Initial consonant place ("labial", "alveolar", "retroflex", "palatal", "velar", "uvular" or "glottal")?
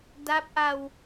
alveolar